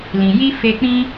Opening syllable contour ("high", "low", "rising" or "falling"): low